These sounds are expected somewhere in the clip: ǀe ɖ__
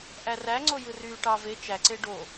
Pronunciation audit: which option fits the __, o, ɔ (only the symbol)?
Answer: o